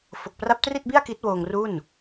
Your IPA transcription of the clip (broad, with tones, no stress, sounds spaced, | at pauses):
f o˨˩ k̚ p r a˦˥ p̚ t r i˥˩ t̚ b i˥˩ a̯ k i˦˥ t̚ w oː˧ ŋ r u˥˩ n